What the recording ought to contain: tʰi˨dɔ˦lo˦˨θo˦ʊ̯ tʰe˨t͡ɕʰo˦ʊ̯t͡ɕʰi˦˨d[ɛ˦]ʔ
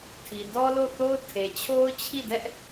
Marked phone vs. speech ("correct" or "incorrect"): correct